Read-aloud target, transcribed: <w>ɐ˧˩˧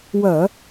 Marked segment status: correct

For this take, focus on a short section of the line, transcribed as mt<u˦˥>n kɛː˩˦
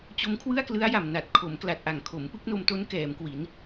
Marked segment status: incorrect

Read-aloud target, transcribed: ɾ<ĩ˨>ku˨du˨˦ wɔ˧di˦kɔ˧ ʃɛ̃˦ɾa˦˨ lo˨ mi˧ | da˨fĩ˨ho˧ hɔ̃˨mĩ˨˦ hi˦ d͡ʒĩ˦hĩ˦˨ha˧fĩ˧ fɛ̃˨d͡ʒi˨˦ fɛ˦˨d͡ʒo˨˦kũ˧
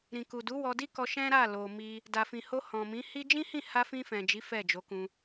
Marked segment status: correct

